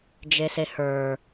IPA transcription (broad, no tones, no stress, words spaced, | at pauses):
d͡ʒesehə˞